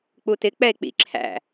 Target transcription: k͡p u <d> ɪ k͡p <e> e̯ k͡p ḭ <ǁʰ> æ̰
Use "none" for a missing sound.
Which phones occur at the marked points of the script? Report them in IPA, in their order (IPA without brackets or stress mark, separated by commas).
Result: t, ɛ, ǁʰ